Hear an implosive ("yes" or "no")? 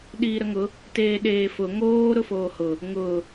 yes